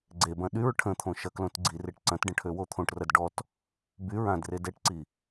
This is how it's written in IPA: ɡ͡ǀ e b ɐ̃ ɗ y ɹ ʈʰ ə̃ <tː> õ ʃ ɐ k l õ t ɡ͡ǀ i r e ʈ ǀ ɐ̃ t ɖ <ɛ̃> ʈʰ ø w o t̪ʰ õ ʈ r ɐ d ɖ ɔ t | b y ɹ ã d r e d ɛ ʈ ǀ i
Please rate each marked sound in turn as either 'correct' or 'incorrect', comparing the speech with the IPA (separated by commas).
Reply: incorrect, incorrect